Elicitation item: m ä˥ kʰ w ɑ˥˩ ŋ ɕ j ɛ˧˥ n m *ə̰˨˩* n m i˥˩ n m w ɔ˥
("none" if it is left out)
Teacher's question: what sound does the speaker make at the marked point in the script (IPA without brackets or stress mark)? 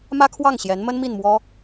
ə˥